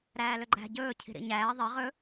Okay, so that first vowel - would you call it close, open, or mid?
open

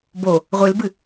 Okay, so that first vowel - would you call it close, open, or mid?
mid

